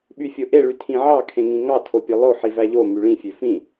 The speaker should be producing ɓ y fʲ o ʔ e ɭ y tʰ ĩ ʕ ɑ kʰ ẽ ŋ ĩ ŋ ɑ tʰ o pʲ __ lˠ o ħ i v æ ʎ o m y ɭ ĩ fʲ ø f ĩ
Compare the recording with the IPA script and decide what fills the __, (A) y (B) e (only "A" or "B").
B